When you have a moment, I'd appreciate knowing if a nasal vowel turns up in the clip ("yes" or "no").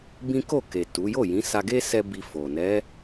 yes